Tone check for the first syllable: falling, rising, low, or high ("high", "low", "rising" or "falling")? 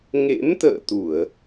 rising